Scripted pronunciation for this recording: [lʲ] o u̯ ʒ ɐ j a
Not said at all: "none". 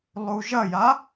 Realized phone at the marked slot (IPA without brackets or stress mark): lˠ